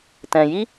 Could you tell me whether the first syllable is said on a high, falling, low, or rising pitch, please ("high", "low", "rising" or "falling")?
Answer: low